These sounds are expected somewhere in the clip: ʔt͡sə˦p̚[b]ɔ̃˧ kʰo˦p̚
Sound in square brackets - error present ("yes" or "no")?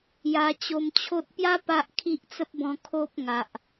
no